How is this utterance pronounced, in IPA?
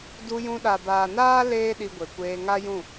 d u˧ j ũ˧ ɗ a˨ b aː˨ n aː˦ l eː˦ ɗ i˧ ɡʷ e˨ kʷ eː˧ ŋ a˦ j ũ˦˨

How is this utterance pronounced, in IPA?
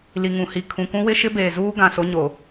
l i˨ ŋ ũ˨ h i˨ kʰ ũ˨ k ũ˦ w ɪ˦ ʃ ɪ˦ b eː˨ z uː˦ ɡ ã˨ s o˦ ɲ o˨

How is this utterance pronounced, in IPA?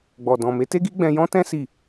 ɡ͡b ɔ˨ d ɔ̃˨ m e˨˦ t e˦ ɡ i˦ ɡ͡b ɛ̃˧ j ɔ̃˦ t ɛ̃˦ s i˦˨

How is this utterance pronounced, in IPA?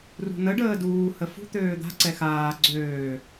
r ṳ n̪ ə ɖ əː d uː h ə f ṳ t̪ øː d̪ a̤ ǀ ɛ x aː ɡ͡ǀ øː

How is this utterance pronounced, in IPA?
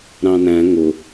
ɾ ɑ̃ n æ̃ ŋ ʊ

